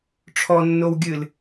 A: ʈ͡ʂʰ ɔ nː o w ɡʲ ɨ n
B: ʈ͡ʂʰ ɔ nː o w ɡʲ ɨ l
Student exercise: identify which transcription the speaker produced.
B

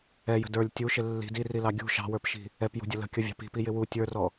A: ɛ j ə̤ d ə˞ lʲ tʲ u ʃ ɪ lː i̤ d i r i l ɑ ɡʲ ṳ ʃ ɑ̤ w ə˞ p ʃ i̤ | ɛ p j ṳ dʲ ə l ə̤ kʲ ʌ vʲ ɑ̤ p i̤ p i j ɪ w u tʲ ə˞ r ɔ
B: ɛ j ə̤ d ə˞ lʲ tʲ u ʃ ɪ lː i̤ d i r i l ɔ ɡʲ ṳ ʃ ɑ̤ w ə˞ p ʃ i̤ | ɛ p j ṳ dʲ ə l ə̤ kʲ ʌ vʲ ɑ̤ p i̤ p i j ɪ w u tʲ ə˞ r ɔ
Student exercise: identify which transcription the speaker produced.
A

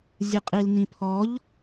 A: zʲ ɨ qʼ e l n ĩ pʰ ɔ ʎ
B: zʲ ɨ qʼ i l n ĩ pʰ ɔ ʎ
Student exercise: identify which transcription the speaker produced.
B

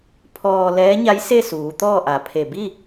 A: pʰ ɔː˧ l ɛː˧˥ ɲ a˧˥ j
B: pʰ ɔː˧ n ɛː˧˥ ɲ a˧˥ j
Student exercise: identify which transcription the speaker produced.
A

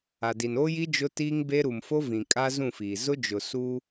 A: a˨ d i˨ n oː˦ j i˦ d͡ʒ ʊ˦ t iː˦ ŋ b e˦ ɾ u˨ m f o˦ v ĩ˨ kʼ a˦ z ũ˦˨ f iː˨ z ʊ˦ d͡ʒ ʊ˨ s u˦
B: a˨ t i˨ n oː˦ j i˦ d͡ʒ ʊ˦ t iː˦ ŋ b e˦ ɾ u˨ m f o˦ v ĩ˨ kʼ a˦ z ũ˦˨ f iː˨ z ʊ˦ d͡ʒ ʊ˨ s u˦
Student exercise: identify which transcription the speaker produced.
A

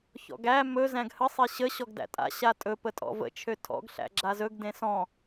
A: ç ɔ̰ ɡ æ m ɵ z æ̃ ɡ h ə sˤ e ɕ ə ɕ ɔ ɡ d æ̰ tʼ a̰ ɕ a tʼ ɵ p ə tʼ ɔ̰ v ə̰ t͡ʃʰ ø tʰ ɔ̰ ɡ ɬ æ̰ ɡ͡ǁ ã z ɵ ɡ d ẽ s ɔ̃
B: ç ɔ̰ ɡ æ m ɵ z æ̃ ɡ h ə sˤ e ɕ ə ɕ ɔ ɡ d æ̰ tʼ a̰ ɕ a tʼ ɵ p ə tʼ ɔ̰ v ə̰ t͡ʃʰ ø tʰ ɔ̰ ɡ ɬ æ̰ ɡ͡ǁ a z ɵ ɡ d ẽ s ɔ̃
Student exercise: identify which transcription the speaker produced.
B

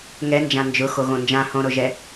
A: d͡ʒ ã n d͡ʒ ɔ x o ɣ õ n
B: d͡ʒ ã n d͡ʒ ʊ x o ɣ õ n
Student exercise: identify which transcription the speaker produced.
B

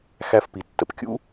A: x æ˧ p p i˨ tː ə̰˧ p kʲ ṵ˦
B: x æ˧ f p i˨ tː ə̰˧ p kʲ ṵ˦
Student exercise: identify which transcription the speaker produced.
B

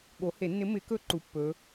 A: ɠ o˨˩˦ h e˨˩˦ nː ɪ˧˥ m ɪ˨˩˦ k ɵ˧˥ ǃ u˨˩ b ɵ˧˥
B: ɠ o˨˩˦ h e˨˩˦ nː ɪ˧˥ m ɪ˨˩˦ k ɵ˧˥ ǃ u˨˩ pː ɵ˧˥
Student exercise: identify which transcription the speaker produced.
B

